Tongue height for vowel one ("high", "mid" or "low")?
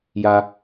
low